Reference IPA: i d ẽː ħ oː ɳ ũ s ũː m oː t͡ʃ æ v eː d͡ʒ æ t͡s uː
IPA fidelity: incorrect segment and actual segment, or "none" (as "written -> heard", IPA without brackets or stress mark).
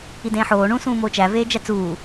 none